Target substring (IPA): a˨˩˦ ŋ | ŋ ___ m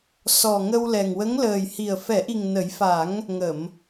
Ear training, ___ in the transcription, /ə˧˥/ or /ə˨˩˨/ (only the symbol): ə˨˩˨